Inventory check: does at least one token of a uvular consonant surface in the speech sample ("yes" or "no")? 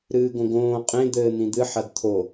yes